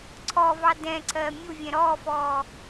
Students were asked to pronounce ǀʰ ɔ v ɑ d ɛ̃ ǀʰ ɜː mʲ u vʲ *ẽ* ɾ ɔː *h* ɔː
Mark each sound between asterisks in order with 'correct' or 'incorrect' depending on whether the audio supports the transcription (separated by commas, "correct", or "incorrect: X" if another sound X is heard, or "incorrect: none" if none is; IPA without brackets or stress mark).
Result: incorrect: ɛ̃, incorrect: f